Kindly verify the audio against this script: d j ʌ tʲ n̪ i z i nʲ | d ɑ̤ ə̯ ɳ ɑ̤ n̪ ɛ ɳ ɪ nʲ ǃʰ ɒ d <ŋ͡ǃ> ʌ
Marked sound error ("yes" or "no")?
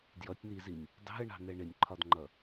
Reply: no